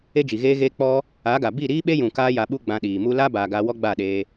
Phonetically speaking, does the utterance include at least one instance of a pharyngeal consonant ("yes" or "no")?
no